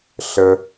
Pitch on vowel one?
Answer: high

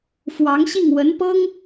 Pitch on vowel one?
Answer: rising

